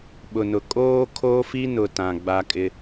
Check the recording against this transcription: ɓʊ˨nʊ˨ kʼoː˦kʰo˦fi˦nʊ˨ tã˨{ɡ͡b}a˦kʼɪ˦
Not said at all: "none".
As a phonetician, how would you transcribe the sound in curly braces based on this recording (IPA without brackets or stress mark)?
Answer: ɡ͡b